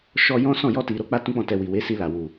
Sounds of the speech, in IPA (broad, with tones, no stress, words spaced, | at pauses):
ʃɔ˧ jɔ̃˦sɔ̃˦˨ jɔ˧ti˨ɾo˨˦ k͡pa˦tũ˦k͡pɔ̃˦˨tɛ˧ wi˨we˨˦si˧la˨ wu˨